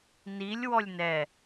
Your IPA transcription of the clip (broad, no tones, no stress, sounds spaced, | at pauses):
n i lʲ w ɔ lʲ n ɛ